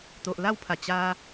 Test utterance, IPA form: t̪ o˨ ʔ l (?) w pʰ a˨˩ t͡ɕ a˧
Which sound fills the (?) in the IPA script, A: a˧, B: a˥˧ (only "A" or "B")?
B